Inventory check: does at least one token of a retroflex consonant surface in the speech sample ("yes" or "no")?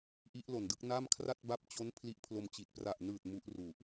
no